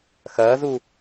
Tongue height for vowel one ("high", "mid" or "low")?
low